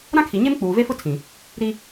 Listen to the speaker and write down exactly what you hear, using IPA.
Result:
ɾ ã˦ kʰ i˨ ɲ e˦ m k͡p uː˨ v e˦ f ʊ˦ tʰ ĩ˨ | ɾ i˦

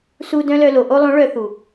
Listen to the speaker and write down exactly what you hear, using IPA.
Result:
s u˧ d œ̃˦ l œ˧ l o˨ ʔ o˧ lˠ õ˨˦ ɭ œ˧ θ u˨

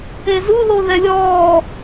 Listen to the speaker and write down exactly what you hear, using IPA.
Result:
e z u l o ð ɛ lʲ ɔː

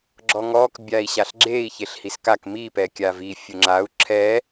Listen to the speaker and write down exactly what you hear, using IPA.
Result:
ɡ͡ǁ ɔ ŋ ɔ k bʲ a i̯ ɕ a ɬ ɡ͡ǁ e i̯ ç e ɬ h i s k a k m i p ɛ kʲ a v i fʲ ʊ ŋ͡ǁ a u̯ ǁʰ ɛ

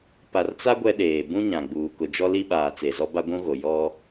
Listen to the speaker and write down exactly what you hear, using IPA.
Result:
p a˨ r t͡s a˦ ɡʷ ɛ˦ ɗ eː˨ b ũ˦ ɲ ã˨ ɡ͡b uː˨ k ʊ˨ d͡ʒ ɔ˦ l i˦ ɓ aː˨ t͡s e˨ z ɔ˦ b a˦ ɡʷ ũ˦ ɣ o˨ j ɔ˦

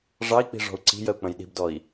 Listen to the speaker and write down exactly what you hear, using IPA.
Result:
ʐ ɑ i̯ k͡p i̤ ʐ ɔ̤ u̯ ǀ i̤ j ə u̯ k͡p ə̃ j ɗ i̤ b d ɔ i̯

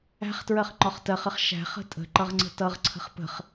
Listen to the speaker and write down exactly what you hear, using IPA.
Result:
æ̤ χ t ɹ ɜ χ ŋ͡ǃ ɒ χ t ɜ χ ə χ ʃ æ̤ χ ə̤ tʼ ə̤ ǃ ʌ ʁ ŋ͡ǀ ə̤ t ʌ ʁ ǀʰ ə̤ χ p ə̤ χ

